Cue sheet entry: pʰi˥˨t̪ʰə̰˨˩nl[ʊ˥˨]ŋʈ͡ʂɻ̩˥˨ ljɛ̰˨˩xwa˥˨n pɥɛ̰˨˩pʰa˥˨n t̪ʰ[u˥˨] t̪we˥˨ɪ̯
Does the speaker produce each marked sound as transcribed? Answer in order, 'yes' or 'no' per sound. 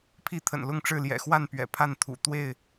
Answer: yes, no

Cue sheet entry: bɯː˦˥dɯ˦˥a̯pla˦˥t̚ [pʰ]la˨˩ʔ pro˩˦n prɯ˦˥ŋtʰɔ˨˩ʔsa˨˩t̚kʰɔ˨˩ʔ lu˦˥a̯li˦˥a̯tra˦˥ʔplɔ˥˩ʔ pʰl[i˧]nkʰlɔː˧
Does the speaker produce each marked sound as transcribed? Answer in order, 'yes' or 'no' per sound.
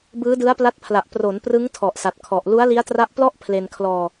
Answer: yes, no

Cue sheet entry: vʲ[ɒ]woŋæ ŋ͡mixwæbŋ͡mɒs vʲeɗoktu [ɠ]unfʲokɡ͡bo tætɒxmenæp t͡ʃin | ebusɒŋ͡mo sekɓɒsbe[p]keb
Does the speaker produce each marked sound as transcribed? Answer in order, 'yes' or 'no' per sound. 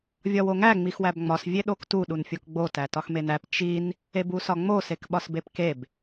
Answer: yes, no, yes

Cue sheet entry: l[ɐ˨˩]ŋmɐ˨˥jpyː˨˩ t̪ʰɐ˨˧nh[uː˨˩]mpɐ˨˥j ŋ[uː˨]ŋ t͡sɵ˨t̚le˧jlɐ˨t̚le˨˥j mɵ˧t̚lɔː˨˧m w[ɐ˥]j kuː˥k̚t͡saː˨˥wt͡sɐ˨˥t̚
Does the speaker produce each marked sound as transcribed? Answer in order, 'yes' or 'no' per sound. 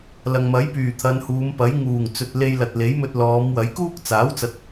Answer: no, no, no, no

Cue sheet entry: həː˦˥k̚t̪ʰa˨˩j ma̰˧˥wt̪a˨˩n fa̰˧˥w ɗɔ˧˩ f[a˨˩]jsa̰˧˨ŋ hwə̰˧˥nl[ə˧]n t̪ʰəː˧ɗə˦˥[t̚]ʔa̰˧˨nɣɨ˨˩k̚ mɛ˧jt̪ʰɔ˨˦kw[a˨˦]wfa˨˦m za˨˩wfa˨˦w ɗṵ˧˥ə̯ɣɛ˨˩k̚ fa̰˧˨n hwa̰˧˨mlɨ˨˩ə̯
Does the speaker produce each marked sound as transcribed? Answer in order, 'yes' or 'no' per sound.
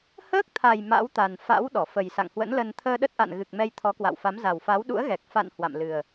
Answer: no, yes, yes, no

